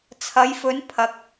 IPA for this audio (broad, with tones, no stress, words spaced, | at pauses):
t͡sʰɐ˨˧jfɵ˨˧n pʰɐ˨k̚